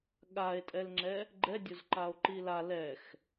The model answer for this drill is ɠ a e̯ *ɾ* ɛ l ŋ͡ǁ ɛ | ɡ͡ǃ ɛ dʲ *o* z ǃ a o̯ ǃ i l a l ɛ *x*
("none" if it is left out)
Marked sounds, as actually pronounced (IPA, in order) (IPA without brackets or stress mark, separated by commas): tʼ, o, x